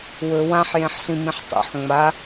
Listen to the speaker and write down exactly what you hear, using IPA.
w ɵ w ã ħ j ẽ ħ ɬ ĩ m ĩ ħ tˤ ṵ ħ ŋ͡m a

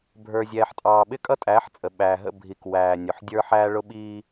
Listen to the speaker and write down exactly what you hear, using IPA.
bʱ ə˞˨ zʲ ɛː˨ ħ tʼ ɑː˨ ɓ ɪ˦ kʼ ʌ˦ tʼ æː˨˦ ħ t͡sʼ ə˨ ɓ æː˨ ɦ ə̰˦˨ bʱ i˨ k w æː˨ nʲ ʊ˨ ħ dʲ ə˞˦ ħ æː˦ ɭ ʊ˦ ɓ iː˦

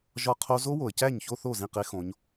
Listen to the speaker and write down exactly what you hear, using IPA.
ʒ ɒ˦˥ qʰ o˦˥ z o˦˥ w o˩ ə̯ c æ˥˩ ɲ ç o˥˧ θ o˥˩ z ĩ˥˩ q e˦˥ x õ˩˧ ɲ

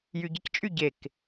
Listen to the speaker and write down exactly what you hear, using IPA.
j y ɟ ɪ c t͡ʃʼ y ɟ e k

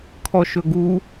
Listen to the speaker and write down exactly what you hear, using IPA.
kʰ ɔ ʃ ɵ ɡ u

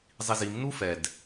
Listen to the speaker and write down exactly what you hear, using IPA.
zˤ i z i m n u f ɛ d

